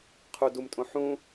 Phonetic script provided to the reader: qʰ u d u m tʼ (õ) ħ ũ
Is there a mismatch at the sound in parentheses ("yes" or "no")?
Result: no